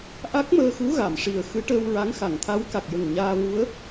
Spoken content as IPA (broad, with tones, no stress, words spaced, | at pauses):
ʔa˦˥k̚məː˧xu˧˥ ɣa˨˩˨mʂi˨˩ə̯ xɨ˧˥ʈəː˧wɹa˧˥ŋ xa˨˩˨ŋt̪ʰa˧˥w ka˨˩k̚jə˨˩ŋ ɲaː˧ vu˧˥ə̯